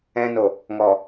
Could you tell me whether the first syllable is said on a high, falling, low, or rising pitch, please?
low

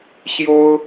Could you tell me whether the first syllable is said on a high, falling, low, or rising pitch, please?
high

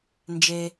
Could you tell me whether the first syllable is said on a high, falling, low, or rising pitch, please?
low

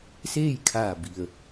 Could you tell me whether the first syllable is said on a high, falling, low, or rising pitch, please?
falling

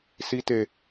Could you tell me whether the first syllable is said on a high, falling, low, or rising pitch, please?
high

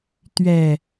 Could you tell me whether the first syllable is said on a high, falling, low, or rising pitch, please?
low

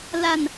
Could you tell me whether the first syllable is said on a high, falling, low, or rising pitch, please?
low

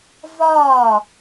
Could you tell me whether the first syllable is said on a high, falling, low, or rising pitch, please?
falling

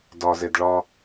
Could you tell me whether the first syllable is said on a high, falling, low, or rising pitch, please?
low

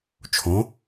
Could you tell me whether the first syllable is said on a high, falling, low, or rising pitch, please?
rising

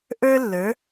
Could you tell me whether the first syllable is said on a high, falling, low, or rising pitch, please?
high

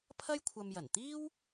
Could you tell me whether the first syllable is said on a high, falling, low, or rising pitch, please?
high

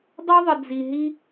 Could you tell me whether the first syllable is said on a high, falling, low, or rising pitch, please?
high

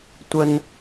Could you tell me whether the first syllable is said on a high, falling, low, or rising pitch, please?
high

